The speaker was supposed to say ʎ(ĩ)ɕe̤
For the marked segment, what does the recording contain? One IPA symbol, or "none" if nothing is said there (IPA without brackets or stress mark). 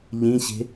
ĩ